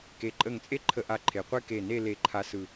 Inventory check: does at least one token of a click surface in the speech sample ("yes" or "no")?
yes